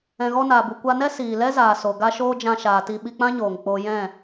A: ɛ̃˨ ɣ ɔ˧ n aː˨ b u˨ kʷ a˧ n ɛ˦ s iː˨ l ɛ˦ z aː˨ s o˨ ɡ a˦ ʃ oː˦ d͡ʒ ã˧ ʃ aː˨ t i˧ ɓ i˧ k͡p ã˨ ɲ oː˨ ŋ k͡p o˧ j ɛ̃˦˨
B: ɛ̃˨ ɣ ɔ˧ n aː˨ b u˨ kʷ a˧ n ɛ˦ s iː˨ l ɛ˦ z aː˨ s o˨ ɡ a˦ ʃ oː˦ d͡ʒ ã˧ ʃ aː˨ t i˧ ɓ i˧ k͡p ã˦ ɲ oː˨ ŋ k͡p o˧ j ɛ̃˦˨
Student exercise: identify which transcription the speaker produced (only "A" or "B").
B